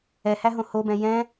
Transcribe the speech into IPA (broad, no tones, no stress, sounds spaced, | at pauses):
ɛ h æ ɦ õ h o b ɛ̃ j ɛ̃